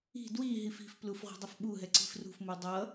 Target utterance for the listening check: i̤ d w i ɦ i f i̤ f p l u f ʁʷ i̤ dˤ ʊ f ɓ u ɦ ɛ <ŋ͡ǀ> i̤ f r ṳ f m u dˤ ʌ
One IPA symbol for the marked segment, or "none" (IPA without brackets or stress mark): ǀ